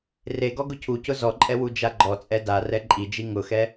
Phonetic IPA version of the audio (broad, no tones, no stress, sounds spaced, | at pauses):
r e ɡ ɔ ɡ ʊ cʰ u c ʊ z ɔ ǃʼ ɛ w u d͡ʒ a ɡ͡ǃ ɔ t͡sʼ ɛ d a r ɛ ǃʼ i d͡ʒ i ŋ ʊ x ɛ